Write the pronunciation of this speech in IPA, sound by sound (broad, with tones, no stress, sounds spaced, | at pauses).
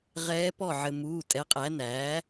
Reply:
ʁ ɛː˧˥ p ɔ˥˩ ʕ ɘ˧ m uː˩˧˩ tʼ ɛ˩˥ qʼ æ˩˥ n æː˩˥